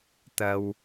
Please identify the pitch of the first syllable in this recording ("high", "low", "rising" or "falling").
low